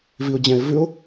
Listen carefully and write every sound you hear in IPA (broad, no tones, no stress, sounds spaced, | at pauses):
v i ʊ̯ d͡ʑ ɛ̃ ɪ̯ v ʉ ʊ̯